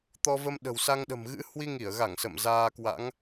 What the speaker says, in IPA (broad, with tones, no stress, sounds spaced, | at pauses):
t̪ ɔ˧ v ə˧ m ɗ ə̤˨˩ w s a˧ ŋ ɗ ə̤˨˩ m ɣ ɨ̰˧˥ h w i˧ ŋ i˧˩ ə̯ ɣ a˧˩ ŋ s ə̰˧˨ m z aː˧ k w a̰˧˥ ŋ